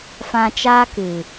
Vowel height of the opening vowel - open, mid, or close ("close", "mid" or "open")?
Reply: open